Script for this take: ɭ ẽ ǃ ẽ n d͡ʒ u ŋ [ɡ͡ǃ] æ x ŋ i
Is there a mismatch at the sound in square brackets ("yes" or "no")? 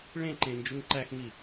yes